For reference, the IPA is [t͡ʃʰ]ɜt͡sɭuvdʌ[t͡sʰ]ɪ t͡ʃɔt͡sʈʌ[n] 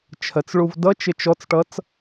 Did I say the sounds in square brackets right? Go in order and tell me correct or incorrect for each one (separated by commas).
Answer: correct, incorrect, incorrect